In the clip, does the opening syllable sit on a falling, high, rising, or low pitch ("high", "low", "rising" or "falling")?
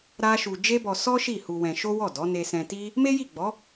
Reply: high